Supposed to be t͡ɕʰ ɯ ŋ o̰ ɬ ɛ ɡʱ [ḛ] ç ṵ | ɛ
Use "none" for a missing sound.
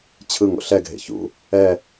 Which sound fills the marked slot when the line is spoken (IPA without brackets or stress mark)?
ḛ